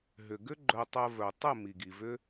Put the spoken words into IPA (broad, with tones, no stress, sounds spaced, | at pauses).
ɦ ʏ˨ ɡ ʏ˦ ɡ͡ǃ œ˧ tˤ ɜ˧ v œ˨ tˤ ə˦˨ m i˨ ɡ i˨ v ʏ˦